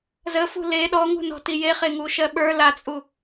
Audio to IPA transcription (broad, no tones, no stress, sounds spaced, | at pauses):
z ə f ṳ l e ɗ ɔ ŋ ṳ n ɔ̤ t i j e χ e ŋ u ʃ ɜ ɓ ə˞ l a t͡sʼ u